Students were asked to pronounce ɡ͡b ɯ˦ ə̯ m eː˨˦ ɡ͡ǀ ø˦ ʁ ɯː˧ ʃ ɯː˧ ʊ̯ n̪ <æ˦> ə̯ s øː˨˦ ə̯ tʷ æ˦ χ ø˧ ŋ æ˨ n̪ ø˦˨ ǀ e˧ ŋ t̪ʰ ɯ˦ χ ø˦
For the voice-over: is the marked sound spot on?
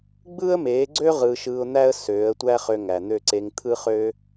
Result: yes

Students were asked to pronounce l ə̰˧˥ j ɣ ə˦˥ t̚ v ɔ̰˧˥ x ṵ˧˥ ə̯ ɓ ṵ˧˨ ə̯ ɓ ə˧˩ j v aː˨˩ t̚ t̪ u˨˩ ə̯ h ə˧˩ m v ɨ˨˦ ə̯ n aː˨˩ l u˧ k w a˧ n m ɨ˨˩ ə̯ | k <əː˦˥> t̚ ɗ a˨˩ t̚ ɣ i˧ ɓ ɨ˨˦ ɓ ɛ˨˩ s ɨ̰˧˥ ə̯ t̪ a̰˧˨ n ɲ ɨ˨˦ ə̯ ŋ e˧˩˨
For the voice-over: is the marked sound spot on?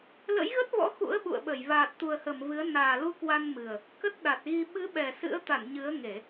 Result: no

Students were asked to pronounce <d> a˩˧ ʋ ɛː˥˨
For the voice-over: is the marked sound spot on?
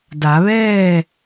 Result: yes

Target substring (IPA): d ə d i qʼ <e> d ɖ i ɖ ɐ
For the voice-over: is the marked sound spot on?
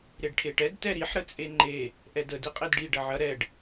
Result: yes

